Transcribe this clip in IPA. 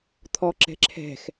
t̪ʰɔ ǁɛ̤ǁʰɛ̤x

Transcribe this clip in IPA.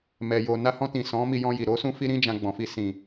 mɛ˨ jo˨na˧hɔ̃˧tĩ˨ sɔ̃˨˦ mi˧jɔ̃˧ji˨ ɾo˨˦sũ˦fi˦ɾĩ˦ d͡ʒã˧ɡ͡bɔ̃˨fi˧ sĩ˨

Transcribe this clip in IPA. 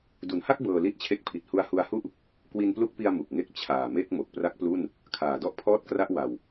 du˩˦nha˥˩k̚ bɤː˧li˥˩t̚t͡ɕʰe˦˥k̚ pʰi˨˩t̚hu˧a̯hu˧a̯hu˥˩ʔ | kwi˧nplu˦˥k̚pi˧a̯ mu˨˩k̚ŋe˦˥k̚ t͡ɕʰaː˨˩me˥˩k̚ mo˨˩k̚pra˦˥k̚plu˥˩n | kʰaː˨˩dɔ˥˩ʔpʰɔː˥˩t̚kra˥˩ʔ wa˧w

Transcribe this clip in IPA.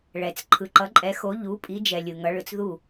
ɭɛ˨t͡s ǃʰɯ˨ǃʌ˨˦ǃʼɛ˨˦xo˨˦ ʎu˨˦pʼi˨˦ d͡ʒɛ˨lʲɯ˨ŋʌ˨˦ ɭɯ˨t͡sðu˥˨

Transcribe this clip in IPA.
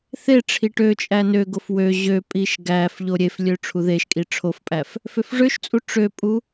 θeʈ͡ʂʰi ʈøt͡ʃʼæ nøɡof wø ʑøpʼiʃ ɡæf ʎoɾʲeflʲø ʈ͡ʂʰuðeʃkʼi ʈ͡ʂʰofpʼæf | føfʐøʃt͡sʼu ʈ͡ʂøpʼu

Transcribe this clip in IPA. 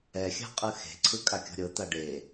ɛ xʲa̤qʼɯxe̤ ǀʰɯkʼakʲɔ̤ɾʲɤ t̪aɖe

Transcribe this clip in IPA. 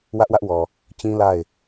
wä˦ʔwä˦ʔwɔ˨ | t͡ɕĩ˦la˦˨ɪ̯

